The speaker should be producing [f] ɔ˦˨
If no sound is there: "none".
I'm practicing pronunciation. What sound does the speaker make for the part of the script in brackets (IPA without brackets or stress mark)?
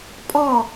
pʼ